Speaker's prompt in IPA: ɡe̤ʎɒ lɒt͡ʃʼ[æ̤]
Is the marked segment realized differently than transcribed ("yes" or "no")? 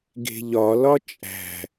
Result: no